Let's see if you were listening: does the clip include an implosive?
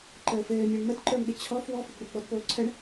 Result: yes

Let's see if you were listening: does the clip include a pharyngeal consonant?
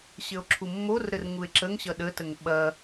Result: no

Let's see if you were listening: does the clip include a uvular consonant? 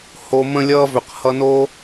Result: yes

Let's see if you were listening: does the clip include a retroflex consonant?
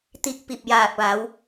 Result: no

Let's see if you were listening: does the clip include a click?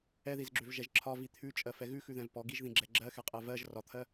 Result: yes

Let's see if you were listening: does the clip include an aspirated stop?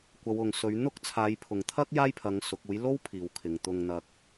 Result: yes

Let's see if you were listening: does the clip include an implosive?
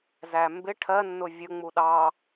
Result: yes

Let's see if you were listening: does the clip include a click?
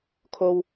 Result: no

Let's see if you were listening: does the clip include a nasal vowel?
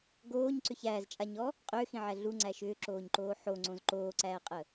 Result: yes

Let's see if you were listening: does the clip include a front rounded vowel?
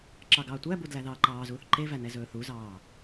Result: no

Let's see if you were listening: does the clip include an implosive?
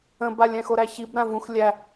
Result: no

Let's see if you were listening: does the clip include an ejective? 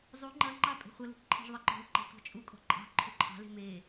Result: yes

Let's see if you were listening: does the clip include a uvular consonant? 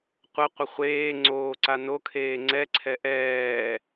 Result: yes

